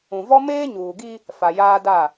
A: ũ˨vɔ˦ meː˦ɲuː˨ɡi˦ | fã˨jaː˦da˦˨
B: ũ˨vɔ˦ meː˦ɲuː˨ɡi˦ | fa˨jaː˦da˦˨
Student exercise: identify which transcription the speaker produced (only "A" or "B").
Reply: B